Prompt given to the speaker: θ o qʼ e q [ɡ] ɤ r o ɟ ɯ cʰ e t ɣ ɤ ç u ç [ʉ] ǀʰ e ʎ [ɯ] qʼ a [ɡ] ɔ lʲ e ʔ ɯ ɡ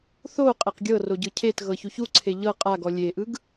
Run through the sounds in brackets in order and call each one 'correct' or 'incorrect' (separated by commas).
incorrect, incorrect, incorrect, correct